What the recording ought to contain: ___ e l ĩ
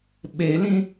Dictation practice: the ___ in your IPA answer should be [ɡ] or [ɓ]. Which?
ɓ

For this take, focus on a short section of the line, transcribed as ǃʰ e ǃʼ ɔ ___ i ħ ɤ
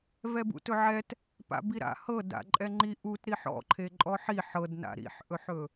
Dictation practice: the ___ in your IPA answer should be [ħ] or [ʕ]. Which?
ħ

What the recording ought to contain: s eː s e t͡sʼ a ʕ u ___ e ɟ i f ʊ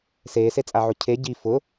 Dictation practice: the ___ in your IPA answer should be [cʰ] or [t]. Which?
cʰ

